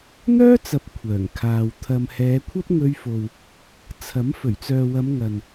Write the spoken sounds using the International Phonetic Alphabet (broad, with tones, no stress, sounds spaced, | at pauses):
n̪ œː˥ t͡s ɐ˨ p̚ kʷʰ œː˨˩ ŋ kʰ aː˨ w t̪ʰ ɐ˨ m h ɛː˨˧ kʷʰ ɐ˥ p̚ ŋ ɵ˧ ɥ f o˨ w | t͡sʰ ɐ˨˥ m f ɵ˨˩ ɥ t͡s œː˨ w ɐ˨˧ m ŋ ɐ˨ n